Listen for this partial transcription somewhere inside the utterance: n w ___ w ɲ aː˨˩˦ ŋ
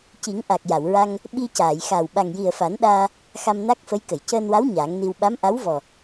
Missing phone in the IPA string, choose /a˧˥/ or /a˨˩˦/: a˧˥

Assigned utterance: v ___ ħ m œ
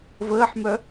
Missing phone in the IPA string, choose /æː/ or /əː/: əː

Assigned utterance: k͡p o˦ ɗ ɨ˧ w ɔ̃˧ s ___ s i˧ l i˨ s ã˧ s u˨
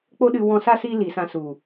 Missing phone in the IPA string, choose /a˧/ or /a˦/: a˦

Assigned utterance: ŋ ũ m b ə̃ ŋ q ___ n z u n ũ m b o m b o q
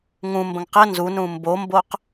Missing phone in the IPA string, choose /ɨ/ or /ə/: ə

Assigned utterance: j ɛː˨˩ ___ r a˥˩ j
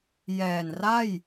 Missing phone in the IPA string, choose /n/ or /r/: n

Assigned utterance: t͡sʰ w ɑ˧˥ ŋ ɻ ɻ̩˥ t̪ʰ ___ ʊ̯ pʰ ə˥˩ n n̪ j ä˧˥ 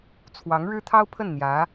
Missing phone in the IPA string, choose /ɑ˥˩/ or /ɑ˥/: ɑ˥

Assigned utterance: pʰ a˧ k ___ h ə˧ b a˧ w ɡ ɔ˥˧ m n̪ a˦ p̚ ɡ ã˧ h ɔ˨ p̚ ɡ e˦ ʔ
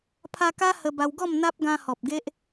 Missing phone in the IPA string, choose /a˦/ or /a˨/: a˦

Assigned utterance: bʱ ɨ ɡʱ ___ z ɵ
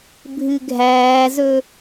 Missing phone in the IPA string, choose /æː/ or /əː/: æː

